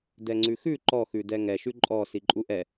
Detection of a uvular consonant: absent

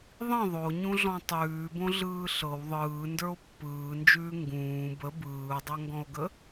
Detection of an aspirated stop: absent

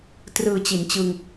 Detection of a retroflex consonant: absent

